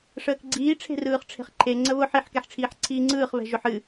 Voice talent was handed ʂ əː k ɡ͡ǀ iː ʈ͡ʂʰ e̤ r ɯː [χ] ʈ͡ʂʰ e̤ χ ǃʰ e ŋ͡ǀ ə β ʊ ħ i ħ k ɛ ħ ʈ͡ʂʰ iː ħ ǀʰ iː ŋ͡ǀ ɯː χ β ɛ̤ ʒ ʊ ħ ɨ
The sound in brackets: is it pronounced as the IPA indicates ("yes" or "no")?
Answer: yes